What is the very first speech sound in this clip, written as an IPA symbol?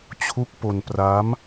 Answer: t͡ɕʰ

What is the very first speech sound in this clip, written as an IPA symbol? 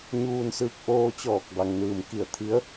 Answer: ɲ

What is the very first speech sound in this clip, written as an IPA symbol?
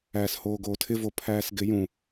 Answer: æː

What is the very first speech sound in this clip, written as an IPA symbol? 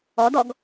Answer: ɔ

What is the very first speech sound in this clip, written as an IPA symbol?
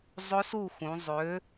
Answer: zˤ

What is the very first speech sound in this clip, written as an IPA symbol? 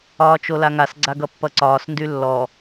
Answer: ɒː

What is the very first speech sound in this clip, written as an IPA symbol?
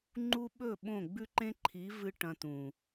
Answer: ŋ͡ǃ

